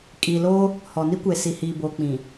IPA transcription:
kʼ iː˨ l oː˦ | h ɔ˨ n i˦ kʷ e˨ s i˨ h iː˨ b oː˨ k͡p ĩ˨

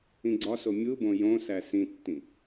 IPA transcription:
ĩ ɡ͡ǀ ɒ s o mʲ u b õ j õ s æ s ĩ tː ĩ

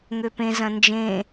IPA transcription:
ŋ ø p ẽ z ɐ̃ n d͡ʒ ẽ

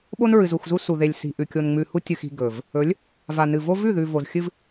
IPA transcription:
ɓ o˦ n ɹ ɨ˨ z u˦˨ x z u˦ s u˨ ð e˨ lʲ s i̤˨ ʔ ʉ˨ kʲ o˨ n ŋ͡m ʉ˨ h u˦ tʲ ɨ˨ x i̤˨ ɡ ɵ˨ v | ɵ˨˦ lʲ | v a˨ n ɨ˨ v o˦ v ʉ˦˨ ð ʉ˨ v o˨ z xʲ ɨ˦ v

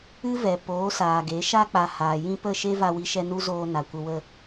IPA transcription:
ɨ˦ v ɛ˨ p oː˨˦ s aː˨ ɡ e˨˦ ʃ a˦ k͡p a˨ h aː˨ j ĩ˧ p ə˦˨ ʃ e˦ v a˧ w i˧ ʃ ɛ˧ n u˦ z oː˧ n a˨ kʷ ə˧ w ə˦˨

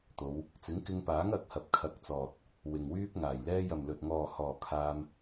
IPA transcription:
t̪ o˨˧ w | t͡s ɪ˨˥ ŋ k ɪ˧ ŋ p aː˨˥ ŋ ɐ˨˥ k̚ h ɐ˨˥ p̚ kʰ ɐ˨ k̚ t͡s ɔː˨ t̚ | w ɪ˨ ŋ w yː˥ p̚ ŋ aː˨˩ j l ɛː˧ j ɐ˨ m l ɵ˨ t̚ ŋ ɔː˨ h ɔː˨ kʰ aː˧ m

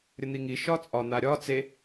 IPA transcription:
ɾʲ ə n̪ i ŋ i ʃ ɒ t͡sʼ ɒ n̪ a ɾʲ ɒ t͡s e

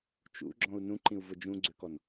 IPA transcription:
t͡ʃ ṵ ɡ͡ǁ ɔ̃ u̯ n ũ ǃ ĩ u̯ v ʊ d͡ʒ ũ ɡ͡ǀ ø k ɔ n

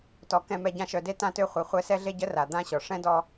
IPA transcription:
t ɔ˩ k ɛ̃˨ m ɛ˨ ɟ ã˦ ʃ œ˨ d e˥ t ã˦ t ø˦ χʷ e˨ χʷ ɛ˦ s ɛ˥ ɮ e˥ ɟ ə˥ r a˩ d̪ ã˥ ɕ ɔ˩ ʂ ɛ̃˥ d ɔ˦

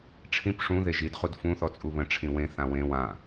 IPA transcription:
ʈ͡ʂʰ ĩ p ʂ ũ ð e ʒ i d χ u d f ũ θ ɔ t͡sʼ u β ə̃ ʈ͡ʂʰ ĩ w ẽ θ ã w ẽ w ã

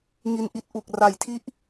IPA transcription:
ŋ i˧ n ʔ i˥˩ t̚ ʔ u˨˩ k̚ r a˩˦ j tʰ i˦˥ ʔ

